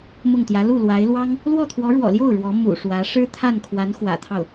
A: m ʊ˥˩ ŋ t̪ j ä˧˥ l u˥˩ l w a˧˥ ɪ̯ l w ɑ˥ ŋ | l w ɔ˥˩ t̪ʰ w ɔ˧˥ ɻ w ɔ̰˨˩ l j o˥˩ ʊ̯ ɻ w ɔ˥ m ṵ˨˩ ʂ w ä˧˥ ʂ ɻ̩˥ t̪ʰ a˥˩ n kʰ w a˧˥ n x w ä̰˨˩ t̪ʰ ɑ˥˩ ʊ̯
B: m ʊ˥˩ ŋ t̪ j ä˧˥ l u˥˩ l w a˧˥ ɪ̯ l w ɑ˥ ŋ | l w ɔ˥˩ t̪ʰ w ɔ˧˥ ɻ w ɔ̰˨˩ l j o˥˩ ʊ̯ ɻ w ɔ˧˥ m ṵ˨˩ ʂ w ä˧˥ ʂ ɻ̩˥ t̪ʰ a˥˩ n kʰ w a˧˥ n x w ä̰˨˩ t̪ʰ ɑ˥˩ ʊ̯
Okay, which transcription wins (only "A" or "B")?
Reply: B